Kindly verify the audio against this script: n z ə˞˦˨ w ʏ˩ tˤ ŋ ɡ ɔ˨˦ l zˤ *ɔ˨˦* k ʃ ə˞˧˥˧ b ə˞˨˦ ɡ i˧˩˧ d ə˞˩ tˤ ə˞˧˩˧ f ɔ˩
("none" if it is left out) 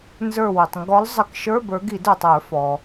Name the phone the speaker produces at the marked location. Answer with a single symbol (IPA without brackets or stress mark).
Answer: ə˨˦